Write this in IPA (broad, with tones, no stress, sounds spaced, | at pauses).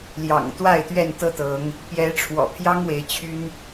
l j ɑ̰˨˩ ŋ t̪ w a˥˨ ɪ̯ t̪ ɥ ɛ˥˨ n t̪ ɤ˦ t̪ ɤ˨˦ ŋ | p j ɛ˨˦ ʈ͡ʂʰ w ɔ̰˨˩ pʰ j ɑ˦ ŋ w e˨˦ ɪ̯ t͡ɕʰ y˦ n